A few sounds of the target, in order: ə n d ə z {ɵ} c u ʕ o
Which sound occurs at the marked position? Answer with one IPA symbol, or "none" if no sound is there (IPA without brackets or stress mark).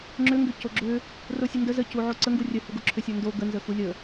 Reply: ə